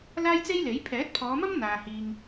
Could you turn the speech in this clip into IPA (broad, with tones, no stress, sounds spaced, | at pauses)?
l aː˥ j t͡s e˥ j l e˨˥ j pʰ ɛː˨˥ t̚ pʰ ɔː˨˧ m ɐ˥ m n̪ aː˨ h iː˨ ŋ